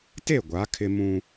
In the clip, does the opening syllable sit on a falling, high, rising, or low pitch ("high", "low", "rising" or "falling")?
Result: falling